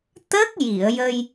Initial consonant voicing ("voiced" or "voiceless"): voiceless